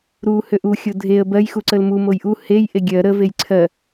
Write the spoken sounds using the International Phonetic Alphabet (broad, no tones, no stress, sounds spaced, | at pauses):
ɾ u h ø ʔ u xʲ o dʱ e ə̯ b ɜ j x u ǀ ə l m u m o j ʔ u h e j ʔ e ɡʲ ɜ ɾ ə v e j ǀʰ ɜ